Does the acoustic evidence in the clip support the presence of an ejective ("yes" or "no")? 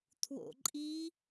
yes